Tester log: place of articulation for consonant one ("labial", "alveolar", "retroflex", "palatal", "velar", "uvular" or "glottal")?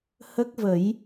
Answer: glottal